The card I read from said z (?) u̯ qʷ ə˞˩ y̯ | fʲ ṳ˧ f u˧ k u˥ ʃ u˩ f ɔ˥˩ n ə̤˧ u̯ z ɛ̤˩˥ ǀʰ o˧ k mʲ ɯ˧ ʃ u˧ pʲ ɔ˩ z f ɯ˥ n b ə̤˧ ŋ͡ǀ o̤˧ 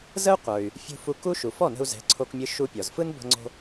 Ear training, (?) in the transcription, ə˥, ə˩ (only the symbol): ə˥